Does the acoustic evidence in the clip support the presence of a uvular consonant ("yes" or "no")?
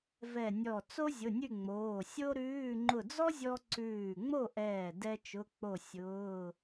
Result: no